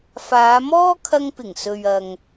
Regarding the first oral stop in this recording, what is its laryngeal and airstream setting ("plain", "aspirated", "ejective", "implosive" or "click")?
aspirated